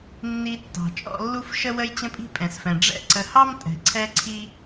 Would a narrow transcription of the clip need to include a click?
yes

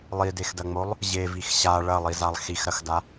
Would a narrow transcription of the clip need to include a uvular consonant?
no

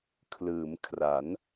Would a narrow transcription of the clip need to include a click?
no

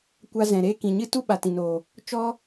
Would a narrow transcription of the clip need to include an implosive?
yes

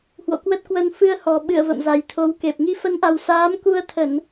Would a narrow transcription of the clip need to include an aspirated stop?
yes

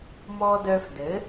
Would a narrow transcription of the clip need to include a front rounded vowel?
yes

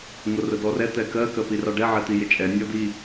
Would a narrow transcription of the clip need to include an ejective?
yes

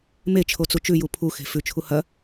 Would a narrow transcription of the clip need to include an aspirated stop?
yes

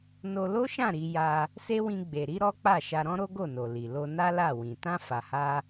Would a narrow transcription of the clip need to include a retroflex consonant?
no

